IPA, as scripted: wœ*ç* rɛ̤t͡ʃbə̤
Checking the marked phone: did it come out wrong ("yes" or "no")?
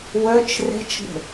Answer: yes